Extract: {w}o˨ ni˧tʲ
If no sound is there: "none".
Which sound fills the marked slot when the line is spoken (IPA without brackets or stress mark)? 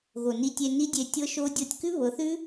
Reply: ɣ